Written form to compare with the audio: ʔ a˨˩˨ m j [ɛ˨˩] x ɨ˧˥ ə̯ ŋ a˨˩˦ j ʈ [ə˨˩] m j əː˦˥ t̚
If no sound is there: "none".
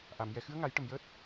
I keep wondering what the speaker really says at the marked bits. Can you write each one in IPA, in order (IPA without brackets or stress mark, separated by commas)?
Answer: ɛ˨˩, ə˨˩